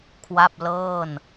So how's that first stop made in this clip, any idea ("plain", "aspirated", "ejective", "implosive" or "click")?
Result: aspirated